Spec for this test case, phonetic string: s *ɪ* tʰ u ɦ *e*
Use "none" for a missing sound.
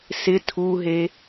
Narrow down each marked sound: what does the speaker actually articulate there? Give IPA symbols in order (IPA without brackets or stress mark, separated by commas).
ɪ, e